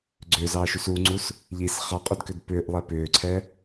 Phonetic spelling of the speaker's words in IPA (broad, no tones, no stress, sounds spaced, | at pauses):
ɡ͡ǀ ʏː z ɑː ʃ u s u ŋ͡ǀ u s | ʎ i s χ ɑ qʼ ʏ d k ʏ d p ʏː ʔ lˠ ɛ p ʏː ǀʰ ɛ